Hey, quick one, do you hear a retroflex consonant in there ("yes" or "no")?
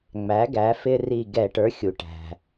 yes